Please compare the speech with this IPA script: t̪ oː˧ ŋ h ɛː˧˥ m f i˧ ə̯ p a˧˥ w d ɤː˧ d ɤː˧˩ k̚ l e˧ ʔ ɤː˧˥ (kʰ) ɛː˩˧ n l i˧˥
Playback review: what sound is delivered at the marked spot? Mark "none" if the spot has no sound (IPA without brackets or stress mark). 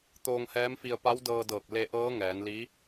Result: ŋ